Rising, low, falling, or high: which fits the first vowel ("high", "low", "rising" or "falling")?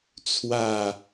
falling